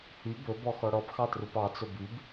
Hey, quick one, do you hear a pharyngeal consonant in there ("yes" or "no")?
no